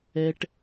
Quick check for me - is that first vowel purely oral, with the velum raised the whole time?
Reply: yes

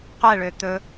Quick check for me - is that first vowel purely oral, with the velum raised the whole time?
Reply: yes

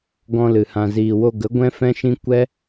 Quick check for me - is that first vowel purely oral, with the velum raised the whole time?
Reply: no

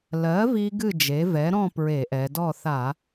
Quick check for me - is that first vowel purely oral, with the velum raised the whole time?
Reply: yes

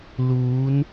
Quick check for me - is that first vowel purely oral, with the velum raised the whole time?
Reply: yes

